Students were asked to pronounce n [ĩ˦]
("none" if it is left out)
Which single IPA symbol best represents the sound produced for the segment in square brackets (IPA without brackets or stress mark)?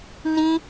ĩ˦